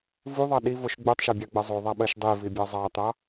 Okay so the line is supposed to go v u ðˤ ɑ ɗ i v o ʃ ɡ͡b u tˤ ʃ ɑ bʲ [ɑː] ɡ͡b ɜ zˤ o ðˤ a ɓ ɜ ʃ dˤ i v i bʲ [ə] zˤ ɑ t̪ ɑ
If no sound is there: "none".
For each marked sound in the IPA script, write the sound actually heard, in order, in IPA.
ɑ, ɑ

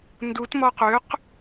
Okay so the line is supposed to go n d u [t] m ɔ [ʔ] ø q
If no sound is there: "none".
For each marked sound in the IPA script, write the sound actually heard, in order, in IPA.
t, q

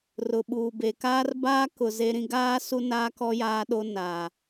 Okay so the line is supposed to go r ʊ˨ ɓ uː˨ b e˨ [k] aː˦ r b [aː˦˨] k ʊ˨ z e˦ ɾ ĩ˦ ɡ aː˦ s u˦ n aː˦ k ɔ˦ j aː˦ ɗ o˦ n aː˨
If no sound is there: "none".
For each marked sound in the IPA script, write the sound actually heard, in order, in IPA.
k, aː˦

